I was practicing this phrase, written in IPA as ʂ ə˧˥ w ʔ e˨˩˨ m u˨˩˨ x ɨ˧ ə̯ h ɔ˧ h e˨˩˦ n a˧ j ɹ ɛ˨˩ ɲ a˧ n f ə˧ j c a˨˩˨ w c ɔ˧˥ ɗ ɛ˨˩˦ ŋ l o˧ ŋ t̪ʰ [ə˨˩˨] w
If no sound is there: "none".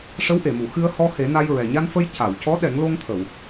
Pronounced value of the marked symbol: ə˨˩˨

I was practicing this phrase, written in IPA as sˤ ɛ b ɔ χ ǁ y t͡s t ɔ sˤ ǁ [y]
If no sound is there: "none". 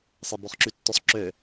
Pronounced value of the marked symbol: ø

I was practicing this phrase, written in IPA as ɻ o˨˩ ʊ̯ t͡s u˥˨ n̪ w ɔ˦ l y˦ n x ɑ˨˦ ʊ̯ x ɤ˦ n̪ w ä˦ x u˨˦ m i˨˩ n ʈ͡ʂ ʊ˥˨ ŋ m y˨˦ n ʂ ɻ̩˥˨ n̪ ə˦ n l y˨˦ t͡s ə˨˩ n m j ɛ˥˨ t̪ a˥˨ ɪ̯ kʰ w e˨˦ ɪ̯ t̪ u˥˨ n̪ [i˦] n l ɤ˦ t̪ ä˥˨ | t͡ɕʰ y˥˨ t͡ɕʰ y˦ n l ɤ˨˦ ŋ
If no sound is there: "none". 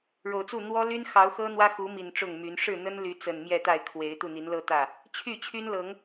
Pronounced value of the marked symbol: i˨˦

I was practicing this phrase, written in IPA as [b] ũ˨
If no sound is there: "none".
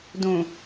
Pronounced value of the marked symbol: d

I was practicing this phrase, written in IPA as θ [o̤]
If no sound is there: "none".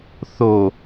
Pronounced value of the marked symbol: o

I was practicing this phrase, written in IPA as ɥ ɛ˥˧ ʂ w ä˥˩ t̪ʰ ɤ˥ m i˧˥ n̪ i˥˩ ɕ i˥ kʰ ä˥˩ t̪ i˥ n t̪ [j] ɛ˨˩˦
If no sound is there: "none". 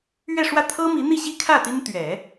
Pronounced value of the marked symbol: ɥ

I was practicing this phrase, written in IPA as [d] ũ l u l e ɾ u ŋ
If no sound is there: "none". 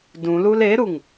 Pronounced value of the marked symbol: d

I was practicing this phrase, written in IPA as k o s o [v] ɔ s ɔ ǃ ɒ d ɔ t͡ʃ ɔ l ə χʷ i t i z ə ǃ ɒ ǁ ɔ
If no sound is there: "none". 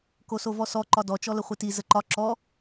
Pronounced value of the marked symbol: v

